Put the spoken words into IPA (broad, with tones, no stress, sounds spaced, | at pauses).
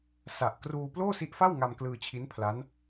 s a˨˩ ʔ k r uː˧ p l oː˥˩ s i˦˥ ʔ f a˥˩ w ŋ a˧ m k l ɯː˧ t͡ɕʰ i˦˥ n pʰ l a˦˥ n